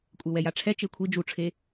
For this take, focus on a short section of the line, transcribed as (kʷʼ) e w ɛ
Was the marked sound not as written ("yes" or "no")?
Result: no